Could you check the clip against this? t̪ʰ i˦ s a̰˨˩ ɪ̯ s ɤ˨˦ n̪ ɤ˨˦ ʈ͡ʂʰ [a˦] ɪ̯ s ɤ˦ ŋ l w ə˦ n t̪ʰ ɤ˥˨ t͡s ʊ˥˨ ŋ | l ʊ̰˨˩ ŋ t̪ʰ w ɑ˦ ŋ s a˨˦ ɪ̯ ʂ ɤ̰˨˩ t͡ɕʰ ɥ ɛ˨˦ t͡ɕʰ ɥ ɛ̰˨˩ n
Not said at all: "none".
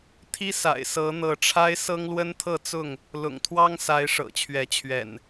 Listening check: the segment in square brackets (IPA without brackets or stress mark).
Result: a˦